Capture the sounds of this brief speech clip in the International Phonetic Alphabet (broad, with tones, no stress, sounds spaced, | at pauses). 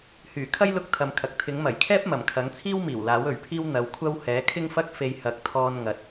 h yː˨˩ kʰ ɐ˥ j l ʊ˧ k̚ t̪ʰ ɐ˨ m kʰ ɐ˨ k̚ t̪ʰ ɪ˨˥ ŋ m ɐ˨˩ j kʰ ɛː˥ p̚ m ɐ˨˩ m kʰ ɐ˨˥ ŋ t͡sʰ iː˥ w m iː˨˩ w l aː˨˥ w ɵ˨˩ ɥ pʰ iː˥ w n̪ ɐ˨˧ w kʷʰ ɐ˥ w h ɛː˨˥ kʰ ɪ˥ ŋ f ɐ˥ k̚ f e˧ j h ɐ˨˥ k̚ t̪ʰ ɔː˧ n ŋ ɐ˨ t̚